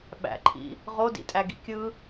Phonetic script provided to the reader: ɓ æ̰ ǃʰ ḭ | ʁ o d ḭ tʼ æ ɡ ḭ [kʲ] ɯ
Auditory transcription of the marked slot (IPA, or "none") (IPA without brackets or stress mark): kʲ